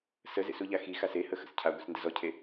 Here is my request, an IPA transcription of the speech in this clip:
s ə z ḛ s u ʎ a x i x a s e h ə x ə̰ s cʰ a ɡʷ i s n d ə z ɔ cʰ e

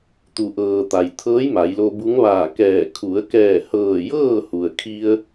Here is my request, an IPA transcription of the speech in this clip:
t̪ u˩ ʔ ɤː˩ t̪ a˩ j t̪ʰ ɤː˧˥ j m a˩˧ j l o˧ b u˧˥ ŋ ʋ aː˧˩ k ɛː˧˩ kʰ u˩˧ ə̯ k ɛː˧˩ h ɤː˧˩ j ɤː˥˨ h u˩ ə̯ kʰ i˧ ə̯

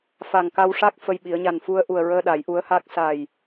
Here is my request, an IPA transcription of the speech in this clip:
f a˨˩ ŋ k a˧ w ʂ a˦˥ k̚ f ə˧ j ɓ i˨˩˦ ə̯ ɲ a˨˩ n f u˧ ə̯ ʔ u˨˩ ə̯ ɹ əː˧ ɗ a˨˩˦ j ʔ u˧˥ ə̯ h a˦˥ k̚ s a˨˩ j

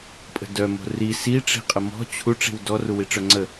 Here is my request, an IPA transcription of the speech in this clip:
pʼ ə̤ d œ m o̤ r i s i ʈ͡ʂ i̤ qʼ ə m ɔ̤ t͡ɕʰ u ʈ͡ʂ i̤ w d ɔ r u w i ʈ͡ʂ œ ŋ͡ǀ ə

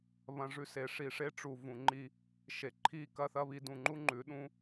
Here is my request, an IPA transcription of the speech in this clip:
β ɐ̃˧ ʐ ʉ˧ s e˨ ʂ i˨ ʂ e˧ ʈ͡ʂ u˨ v ũ˨ ŋ͡ǃ i˧ | ʃ e˨ ǃʰ i˦ k ɐ˦ θ ɐ˦ β i˧ d ũ˨ ŋ͡ǃ u˦ ŋ͡ǃ ʉ˨˦ ɗ ũ˦

